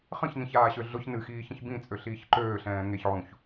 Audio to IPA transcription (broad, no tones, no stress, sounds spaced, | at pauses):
χ ə̃ ç n ĩ ç aː ɕ ø ɮ ʊ ç n ɨ x iː ç ə̃ ç b ĩ t͡sʼ ø ɬ iː ç ǃ øː ɬ ɛ̃ː ŋ e ç ʕ ũ ç